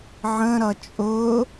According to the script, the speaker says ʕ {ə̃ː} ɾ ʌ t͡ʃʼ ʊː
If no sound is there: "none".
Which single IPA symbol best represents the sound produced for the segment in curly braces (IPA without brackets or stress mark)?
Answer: ə̃